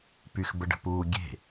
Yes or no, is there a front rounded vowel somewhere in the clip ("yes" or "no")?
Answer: yes